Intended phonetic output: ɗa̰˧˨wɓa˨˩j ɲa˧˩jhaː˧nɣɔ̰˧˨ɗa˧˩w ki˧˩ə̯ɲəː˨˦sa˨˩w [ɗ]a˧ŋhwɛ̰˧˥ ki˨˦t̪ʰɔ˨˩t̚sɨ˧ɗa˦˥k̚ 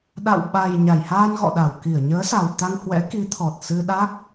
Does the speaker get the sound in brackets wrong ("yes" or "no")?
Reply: yes